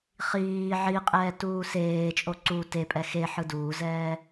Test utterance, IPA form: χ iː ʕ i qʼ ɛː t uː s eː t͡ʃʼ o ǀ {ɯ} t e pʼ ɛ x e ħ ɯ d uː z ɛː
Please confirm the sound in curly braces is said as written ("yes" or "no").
no